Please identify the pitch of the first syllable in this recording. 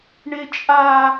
high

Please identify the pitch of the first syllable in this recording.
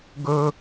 high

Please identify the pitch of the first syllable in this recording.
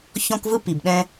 high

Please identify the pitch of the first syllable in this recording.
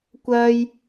low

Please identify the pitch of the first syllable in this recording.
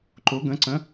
rising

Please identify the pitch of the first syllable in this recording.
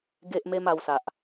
high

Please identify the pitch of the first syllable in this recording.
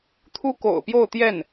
high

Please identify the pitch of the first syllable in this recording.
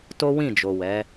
high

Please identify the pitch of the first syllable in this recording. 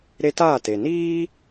high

